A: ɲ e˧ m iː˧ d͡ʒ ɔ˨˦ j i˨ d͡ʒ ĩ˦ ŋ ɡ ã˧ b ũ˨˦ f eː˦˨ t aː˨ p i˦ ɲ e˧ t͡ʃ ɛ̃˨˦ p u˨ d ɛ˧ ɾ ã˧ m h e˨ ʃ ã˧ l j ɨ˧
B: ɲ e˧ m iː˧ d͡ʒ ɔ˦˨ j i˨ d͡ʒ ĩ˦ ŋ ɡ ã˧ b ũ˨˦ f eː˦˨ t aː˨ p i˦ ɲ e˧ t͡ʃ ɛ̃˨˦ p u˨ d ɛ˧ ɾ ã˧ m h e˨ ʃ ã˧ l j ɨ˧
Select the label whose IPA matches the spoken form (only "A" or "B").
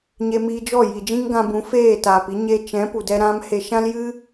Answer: B